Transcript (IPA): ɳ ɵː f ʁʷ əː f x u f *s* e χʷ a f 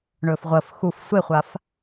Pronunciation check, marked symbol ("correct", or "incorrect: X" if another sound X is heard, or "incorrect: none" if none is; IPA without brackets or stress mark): incorrect: sʷ